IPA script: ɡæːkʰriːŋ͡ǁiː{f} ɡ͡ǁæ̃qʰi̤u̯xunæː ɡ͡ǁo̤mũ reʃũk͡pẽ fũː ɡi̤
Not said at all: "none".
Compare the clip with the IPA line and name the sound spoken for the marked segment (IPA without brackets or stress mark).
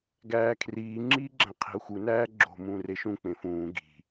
none